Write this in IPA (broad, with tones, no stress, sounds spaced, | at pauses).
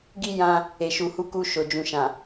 ɡ i˦ j ã˧ | e˨ ʃ u˨ h u˨˦ k u˧ ʃ o˨ d͡ʒ ũ˨ ʃ ã˨